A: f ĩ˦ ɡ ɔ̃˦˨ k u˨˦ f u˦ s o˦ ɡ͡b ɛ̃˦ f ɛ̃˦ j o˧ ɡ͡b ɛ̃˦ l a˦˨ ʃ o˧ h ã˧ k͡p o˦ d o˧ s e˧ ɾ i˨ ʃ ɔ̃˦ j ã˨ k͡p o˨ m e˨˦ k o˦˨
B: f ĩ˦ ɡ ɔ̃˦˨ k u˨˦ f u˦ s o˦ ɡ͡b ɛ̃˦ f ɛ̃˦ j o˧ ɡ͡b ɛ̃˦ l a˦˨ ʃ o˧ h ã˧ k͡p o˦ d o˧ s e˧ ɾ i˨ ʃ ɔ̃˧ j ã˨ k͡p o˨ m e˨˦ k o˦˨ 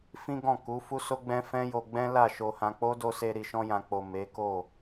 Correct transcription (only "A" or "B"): B